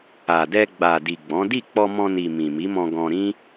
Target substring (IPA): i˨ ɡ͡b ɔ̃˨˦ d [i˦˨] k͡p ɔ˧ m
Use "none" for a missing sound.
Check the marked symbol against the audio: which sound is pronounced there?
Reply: i˦˨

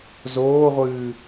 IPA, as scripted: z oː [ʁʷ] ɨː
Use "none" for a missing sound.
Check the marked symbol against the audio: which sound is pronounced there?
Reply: ʁʷ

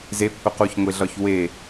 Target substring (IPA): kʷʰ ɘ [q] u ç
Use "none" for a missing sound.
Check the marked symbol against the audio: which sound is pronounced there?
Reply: q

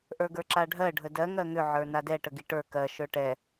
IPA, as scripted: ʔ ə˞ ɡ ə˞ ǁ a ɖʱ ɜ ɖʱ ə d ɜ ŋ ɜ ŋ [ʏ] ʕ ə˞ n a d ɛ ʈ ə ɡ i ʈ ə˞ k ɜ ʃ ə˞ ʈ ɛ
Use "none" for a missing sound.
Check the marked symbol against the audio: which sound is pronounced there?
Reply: ʏ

